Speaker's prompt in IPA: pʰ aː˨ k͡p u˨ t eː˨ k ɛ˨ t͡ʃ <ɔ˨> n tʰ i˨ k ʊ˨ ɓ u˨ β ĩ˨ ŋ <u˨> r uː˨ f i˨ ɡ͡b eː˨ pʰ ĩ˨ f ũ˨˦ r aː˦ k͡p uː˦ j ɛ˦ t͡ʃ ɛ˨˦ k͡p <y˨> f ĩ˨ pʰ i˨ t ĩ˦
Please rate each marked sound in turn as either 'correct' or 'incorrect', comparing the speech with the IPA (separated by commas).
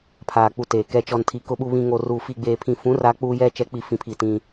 correct, incorrect, incorrect